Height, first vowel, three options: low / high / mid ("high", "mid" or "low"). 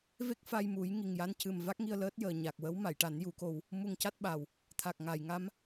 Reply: mid